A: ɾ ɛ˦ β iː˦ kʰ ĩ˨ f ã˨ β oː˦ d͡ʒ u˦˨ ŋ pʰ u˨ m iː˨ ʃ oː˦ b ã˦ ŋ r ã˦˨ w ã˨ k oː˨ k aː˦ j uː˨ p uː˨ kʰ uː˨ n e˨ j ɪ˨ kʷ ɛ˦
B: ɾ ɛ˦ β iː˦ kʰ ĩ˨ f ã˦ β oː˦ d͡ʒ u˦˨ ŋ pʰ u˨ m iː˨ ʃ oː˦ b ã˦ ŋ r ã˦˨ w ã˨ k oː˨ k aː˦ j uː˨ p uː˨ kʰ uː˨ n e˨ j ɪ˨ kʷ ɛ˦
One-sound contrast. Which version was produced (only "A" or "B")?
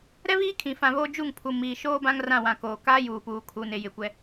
A